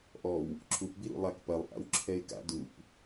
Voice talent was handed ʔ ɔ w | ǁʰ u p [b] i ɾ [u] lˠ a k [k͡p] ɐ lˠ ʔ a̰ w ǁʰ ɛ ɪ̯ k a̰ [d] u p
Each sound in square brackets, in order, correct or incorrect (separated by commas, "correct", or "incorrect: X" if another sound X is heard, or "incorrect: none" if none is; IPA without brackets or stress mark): correct, incorrect: ṵ, incorrect: p, correct